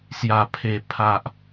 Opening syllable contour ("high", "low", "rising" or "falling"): low